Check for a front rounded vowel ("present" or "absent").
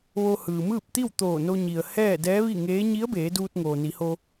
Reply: absent